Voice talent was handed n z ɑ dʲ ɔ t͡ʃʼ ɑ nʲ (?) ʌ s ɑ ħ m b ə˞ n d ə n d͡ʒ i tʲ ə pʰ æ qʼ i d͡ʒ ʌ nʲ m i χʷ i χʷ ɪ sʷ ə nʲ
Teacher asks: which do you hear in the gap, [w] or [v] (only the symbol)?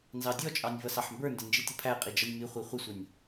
v